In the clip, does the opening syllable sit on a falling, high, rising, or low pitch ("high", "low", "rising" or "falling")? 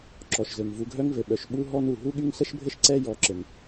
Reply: low